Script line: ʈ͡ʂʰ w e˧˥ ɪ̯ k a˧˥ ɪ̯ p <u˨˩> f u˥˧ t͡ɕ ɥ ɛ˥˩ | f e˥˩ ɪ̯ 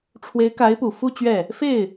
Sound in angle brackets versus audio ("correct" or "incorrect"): correct